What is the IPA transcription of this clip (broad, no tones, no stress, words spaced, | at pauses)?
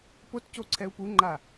potco ǀʰɛu̯puŋ͡ǃa